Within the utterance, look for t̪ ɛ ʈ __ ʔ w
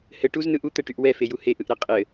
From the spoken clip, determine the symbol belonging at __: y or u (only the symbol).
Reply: y